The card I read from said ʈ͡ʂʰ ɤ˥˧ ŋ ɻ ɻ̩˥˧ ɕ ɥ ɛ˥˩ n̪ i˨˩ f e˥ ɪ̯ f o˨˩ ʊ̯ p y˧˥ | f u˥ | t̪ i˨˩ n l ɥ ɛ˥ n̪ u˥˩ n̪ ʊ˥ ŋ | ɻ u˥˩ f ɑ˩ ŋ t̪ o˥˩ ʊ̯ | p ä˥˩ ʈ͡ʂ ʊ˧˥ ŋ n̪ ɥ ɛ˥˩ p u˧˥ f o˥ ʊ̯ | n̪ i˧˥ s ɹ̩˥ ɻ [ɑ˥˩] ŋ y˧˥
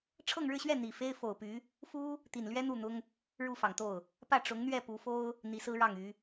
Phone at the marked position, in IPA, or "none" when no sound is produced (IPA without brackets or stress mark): ɑ˥˩